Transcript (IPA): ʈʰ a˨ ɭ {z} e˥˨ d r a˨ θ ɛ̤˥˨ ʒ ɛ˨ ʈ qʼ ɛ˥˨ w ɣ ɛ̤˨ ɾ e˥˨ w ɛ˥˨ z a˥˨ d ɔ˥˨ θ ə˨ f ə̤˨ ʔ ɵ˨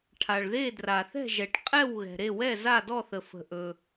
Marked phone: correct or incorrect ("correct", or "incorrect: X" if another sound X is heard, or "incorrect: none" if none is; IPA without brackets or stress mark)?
incorrect: ð